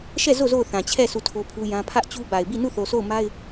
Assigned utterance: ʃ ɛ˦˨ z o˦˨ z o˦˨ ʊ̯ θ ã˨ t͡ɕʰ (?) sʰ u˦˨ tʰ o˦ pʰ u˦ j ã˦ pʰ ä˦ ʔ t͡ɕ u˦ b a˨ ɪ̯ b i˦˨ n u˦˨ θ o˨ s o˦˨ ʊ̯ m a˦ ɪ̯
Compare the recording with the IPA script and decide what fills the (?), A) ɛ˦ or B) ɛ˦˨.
B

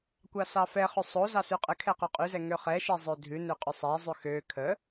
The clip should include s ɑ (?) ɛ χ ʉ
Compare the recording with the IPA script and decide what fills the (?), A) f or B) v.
A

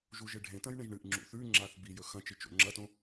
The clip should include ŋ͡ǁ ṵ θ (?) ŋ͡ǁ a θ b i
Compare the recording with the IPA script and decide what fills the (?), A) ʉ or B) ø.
A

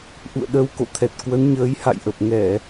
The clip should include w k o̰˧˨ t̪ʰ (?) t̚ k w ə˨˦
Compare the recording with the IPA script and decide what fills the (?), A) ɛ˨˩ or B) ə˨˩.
A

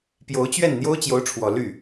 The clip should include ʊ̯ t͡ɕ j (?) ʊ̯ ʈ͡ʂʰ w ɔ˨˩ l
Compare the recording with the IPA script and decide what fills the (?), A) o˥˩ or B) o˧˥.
B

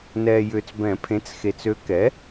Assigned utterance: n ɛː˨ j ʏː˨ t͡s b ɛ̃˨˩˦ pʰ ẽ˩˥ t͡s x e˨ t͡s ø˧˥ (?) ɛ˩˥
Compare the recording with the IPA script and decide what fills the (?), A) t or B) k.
B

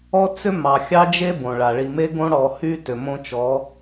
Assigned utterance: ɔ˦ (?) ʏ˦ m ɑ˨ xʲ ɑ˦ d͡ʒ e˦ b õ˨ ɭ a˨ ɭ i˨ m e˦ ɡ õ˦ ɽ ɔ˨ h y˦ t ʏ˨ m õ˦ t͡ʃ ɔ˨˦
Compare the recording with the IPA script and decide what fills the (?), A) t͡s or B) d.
A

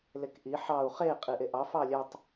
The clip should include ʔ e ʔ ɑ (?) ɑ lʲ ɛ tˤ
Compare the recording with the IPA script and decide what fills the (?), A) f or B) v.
A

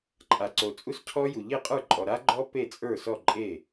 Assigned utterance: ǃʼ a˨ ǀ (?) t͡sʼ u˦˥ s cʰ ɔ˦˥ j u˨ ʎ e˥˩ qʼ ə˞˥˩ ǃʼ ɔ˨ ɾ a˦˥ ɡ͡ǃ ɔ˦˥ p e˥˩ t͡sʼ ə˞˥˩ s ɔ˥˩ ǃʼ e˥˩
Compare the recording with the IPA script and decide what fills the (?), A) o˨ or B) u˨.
A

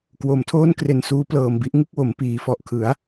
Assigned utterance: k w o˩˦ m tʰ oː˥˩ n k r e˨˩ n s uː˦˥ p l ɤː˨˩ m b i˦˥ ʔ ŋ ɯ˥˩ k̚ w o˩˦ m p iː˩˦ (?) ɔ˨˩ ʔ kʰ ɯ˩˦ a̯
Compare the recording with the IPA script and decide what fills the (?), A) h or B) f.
B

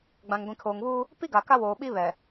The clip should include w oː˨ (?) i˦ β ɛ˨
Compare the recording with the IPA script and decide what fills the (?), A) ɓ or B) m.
A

